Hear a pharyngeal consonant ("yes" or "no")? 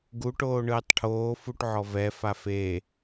yes